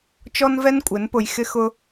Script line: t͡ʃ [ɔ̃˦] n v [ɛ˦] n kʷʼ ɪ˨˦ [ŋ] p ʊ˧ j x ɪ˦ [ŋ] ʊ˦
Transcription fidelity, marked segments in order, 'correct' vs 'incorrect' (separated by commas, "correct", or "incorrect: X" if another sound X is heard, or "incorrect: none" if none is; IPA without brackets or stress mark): incorrect: ɔ˦, correct, incorrect: n, incorrect: x